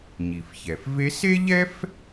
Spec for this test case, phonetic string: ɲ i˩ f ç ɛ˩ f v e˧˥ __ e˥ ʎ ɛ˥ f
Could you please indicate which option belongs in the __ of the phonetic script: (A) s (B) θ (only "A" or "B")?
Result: A